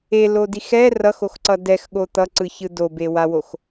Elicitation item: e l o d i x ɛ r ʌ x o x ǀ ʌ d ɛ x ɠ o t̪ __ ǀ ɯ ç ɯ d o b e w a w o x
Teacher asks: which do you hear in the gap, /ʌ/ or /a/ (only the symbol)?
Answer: ʌ